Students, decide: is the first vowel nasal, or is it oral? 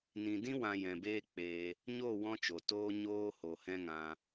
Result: nasal